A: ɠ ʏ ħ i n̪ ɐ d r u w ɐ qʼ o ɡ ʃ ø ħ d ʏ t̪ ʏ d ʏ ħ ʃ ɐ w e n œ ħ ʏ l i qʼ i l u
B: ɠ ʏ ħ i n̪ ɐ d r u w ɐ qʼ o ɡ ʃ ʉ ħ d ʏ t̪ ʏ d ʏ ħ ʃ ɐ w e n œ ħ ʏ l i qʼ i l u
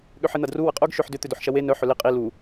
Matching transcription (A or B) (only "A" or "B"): A